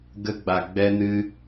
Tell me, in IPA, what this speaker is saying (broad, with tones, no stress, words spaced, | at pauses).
ɡə˦ ɡ͡ba˧ ɡ͡bɛ˦nɨ˦